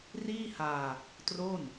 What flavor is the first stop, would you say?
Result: plain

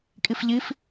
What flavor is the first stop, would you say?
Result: ejective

